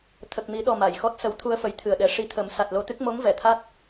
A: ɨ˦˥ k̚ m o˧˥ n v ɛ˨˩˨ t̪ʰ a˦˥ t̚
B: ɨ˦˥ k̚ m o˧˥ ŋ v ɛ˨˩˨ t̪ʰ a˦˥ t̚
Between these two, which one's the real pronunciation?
B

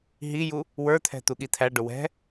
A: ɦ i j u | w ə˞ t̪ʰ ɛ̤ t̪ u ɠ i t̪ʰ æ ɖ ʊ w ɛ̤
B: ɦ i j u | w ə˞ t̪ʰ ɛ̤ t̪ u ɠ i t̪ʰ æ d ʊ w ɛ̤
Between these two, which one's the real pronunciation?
A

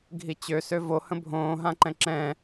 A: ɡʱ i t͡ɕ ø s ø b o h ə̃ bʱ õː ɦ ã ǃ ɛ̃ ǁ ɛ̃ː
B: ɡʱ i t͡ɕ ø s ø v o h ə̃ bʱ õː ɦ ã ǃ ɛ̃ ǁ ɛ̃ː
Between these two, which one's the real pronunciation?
B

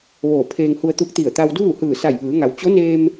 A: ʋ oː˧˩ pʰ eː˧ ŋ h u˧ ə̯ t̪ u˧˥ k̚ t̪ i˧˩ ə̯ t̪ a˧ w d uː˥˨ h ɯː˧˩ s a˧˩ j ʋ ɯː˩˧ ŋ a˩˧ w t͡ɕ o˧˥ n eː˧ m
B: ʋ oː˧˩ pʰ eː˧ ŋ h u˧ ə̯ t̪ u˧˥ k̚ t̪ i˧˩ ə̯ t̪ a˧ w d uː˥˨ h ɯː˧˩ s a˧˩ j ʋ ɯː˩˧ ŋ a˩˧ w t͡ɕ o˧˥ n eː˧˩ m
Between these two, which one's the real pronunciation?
A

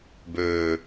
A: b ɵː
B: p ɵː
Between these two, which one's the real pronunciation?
A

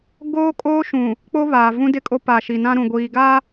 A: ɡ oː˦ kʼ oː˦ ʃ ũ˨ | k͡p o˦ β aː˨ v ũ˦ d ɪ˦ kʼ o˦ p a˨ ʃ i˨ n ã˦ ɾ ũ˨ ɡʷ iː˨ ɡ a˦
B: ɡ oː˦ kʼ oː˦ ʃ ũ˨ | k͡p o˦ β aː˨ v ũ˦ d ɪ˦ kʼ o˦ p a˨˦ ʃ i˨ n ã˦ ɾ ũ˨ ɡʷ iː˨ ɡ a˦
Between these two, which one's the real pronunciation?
A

